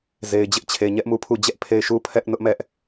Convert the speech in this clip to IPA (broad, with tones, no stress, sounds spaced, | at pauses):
z e˨ ɪ̯ d͡ʑ ɪ˦ ʔ t͡ɕʰ e˨ ɲ ɛ˦ ʔ m u˦˨ pʰ u˦˨ d͡ʑ ɛ˦ ʔ pʰ e˦˨ ɪ̯ ʃ u˦ pʰ ɛ˦ ʔ n ʊ˦ ʔ m ɛ˦ ʔ